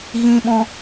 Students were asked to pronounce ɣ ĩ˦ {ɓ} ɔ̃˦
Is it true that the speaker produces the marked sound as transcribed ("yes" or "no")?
yes